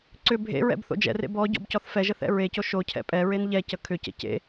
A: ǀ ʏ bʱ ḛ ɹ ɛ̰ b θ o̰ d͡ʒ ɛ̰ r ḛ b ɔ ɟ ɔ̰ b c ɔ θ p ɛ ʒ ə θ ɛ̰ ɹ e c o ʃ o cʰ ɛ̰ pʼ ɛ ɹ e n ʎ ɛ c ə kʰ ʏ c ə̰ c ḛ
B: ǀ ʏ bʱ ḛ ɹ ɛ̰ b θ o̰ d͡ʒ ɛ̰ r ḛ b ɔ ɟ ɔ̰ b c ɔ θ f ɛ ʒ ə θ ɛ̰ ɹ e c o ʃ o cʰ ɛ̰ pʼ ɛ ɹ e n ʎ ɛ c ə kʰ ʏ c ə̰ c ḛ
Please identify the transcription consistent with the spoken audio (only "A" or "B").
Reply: B